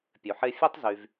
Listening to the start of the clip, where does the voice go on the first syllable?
low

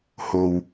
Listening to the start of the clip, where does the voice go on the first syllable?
low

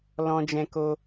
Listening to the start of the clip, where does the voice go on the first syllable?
high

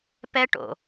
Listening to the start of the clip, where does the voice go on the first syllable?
high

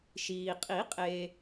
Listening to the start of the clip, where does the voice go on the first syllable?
low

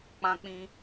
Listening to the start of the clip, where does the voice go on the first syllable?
high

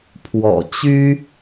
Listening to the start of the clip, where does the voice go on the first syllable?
low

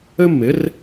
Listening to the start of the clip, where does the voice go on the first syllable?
high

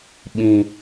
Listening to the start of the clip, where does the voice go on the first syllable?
low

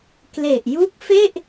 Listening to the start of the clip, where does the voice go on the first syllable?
low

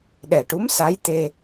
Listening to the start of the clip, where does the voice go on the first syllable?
low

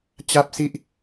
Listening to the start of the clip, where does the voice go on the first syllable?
high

